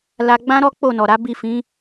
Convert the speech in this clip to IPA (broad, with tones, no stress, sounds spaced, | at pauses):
l a˧ ɡ͡b ã˦ ɾ ɔ˦ k͡p o˦˨ n ɔ˨ ɾ a˨˦ b i˦˨ f ĩ˨˦